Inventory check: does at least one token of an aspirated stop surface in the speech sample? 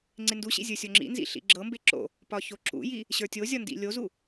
no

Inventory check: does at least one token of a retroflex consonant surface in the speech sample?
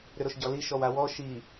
no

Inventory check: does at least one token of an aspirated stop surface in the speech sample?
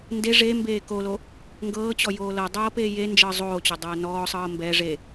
no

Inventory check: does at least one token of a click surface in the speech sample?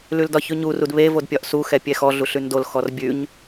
no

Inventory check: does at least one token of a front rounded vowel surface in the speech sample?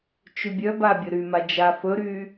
yes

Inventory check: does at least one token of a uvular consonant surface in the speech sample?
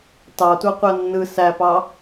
yes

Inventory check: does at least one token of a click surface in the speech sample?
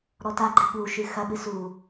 yes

